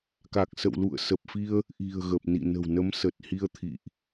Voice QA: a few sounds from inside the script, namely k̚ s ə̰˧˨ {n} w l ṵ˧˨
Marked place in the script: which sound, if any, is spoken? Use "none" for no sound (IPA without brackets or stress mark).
none